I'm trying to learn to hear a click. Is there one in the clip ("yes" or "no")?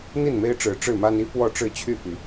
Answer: no